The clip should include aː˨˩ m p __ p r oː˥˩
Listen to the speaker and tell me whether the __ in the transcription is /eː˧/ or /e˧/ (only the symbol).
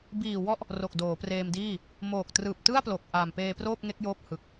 eː˧